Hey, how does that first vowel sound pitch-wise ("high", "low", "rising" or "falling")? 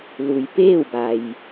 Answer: low